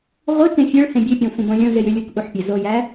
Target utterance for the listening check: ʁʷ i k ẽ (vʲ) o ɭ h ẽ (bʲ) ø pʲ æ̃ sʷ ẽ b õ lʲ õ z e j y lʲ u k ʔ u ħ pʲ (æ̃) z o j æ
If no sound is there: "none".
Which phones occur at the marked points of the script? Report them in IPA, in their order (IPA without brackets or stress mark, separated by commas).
fʲ, bʲ, æ